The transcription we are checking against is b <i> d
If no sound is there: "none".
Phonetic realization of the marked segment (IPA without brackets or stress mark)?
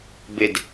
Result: ɪ